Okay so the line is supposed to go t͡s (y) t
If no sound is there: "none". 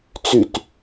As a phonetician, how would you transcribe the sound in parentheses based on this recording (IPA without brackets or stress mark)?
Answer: y